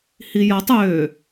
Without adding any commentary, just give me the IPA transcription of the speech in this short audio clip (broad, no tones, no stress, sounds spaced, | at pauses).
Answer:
h i j ɐ tˤ ø